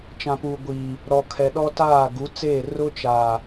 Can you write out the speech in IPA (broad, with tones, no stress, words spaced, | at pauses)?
t͡ʃã˨puː˨ ɡʷiː˨ | ɾɔ˨kʰɛ˨ɗɔ˦taː˦˨ ɡu˨˦t͡seː˦˨ rʊ˦t͡ʃa˨